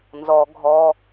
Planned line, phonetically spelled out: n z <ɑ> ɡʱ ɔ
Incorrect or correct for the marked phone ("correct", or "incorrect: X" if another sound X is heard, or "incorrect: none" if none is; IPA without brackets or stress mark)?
incorrect: ɔ